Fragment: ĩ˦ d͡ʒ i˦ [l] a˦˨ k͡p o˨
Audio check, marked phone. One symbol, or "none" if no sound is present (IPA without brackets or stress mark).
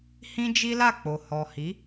l